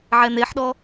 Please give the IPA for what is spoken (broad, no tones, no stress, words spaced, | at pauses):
ʕɛn̪eħɗɔ